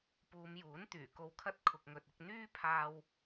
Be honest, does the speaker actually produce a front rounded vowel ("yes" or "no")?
yes